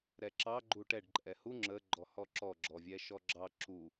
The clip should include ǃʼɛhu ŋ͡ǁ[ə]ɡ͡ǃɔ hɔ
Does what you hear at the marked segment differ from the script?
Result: no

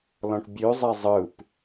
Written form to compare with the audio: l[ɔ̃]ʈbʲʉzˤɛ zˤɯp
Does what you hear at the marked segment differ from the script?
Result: no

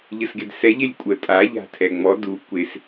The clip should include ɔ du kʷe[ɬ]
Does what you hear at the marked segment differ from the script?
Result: yes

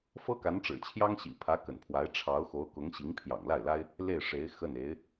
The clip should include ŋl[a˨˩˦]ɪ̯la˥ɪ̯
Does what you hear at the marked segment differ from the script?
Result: yes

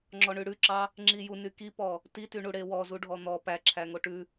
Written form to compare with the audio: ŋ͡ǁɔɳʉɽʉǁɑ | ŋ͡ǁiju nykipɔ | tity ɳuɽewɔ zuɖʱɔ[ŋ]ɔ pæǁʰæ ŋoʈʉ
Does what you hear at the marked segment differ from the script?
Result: yes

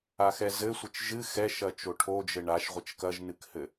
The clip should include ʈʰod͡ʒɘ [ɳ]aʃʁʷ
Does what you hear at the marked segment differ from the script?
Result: no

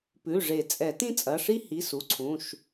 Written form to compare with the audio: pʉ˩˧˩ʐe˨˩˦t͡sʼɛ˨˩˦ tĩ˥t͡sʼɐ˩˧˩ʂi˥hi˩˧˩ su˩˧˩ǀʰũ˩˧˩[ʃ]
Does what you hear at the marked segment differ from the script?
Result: no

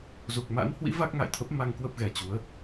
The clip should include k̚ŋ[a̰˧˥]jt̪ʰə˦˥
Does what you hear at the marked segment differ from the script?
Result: yes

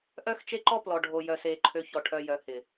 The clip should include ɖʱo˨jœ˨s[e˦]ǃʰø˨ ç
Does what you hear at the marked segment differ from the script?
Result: yes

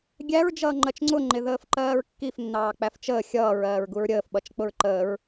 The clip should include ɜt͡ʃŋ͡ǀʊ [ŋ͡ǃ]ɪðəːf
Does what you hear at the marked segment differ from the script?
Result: no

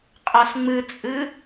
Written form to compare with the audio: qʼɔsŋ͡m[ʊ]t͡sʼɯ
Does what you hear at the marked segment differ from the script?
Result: yes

